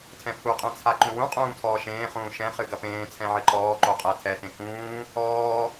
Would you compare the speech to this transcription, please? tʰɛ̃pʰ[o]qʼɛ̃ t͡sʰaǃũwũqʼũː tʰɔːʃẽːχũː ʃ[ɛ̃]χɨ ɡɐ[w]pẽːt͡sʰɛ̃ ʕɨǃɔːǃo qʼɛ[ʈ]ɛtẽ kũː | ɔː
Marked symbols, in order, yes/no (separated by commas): no, yes, no, no